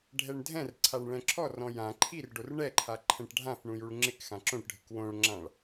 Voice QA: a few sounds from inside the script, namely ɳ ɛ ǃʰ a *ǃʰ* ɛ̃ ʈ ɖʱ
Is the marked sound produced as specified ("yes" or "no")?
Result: yes